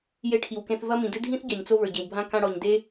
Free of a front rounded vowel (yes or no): yes